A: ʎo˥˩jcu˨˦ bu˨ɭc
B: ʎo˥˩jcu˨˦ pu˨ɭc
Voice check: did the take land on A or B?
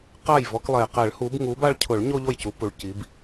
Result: B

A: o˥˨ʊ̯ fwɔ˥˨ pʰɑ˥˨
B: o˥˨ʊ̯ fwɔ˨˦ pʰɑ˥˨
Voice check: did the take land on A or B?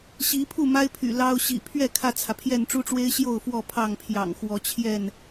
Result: A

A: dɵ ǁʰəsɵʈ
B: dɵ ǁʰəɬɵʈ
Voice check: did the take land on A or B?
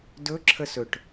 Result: A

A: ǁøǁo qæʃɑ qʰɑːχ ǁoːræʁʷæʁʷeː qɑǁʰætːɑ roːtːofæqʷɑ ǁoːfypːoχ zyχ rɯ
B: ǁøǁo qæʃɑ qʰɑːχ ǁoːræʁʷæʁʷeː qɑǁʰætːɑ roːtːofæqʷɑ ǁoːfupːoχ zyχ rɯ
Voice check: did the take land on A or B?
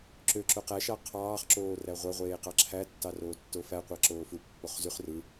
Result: B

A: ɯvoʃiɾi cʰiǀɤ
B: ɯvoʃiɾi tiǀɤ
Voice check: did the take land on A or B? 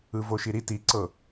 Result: B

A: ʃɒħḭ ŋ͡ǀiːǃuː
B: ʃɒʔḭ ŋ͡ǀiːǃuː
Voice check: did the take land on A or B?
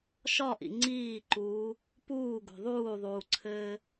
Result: B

